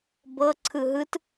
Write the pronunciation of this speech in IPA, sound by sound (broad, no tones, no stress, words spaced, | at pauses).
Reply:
bɤ ǀʰɯɦɯt